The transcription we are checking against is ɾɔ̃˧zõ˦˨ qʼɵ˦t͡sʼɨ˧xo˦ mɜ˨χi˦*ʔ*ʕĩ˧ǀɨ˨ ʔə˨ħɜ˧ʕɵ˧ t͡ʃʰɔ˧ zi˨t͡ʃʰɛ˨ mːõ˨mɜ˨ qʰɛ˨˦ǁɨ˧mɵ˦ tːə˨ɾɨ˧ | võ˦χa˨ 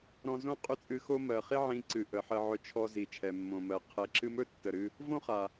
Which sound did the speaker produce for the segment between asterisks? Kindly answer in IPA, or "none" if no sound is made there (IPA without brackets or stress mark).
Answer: none